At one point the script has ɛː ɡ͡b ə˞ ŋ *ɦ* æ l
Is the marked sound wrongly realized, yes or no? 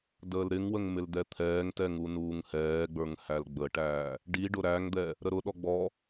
yes